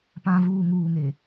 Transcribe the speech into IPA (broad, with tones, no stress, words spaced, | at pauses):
pã˨vuː˨ ŋuː˨ŋe˨